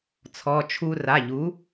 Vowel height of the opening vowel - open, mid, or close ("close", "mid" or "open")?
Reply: mid